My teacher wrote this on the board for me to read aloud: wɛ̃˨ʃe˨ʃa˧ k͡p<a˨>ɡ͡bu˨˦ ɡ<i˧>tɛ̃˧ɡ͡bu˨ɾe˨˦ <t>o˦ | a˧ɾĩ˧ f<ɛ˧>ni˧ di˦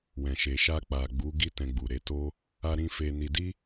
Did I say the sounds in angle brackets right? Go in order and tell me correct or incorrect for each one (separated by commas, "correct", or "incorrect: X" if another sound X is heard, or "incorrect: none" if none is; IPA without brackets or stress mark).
correct, incorrect: i˦, correct, incorrect: e˧